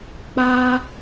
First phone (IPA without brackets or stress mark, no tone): k͡p